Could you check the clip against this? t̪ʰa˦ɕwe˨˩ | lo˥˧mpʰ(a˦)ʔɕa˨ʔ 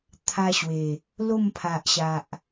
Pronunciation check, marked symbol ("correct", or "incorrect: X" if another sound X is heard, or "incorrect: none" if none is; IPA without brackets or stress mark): incorrect: a˨